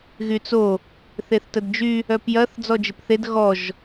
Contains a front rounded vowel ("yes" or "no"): yes